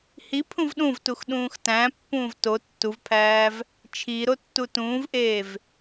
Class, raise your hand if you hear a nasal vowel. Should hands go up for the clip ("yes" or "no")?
yes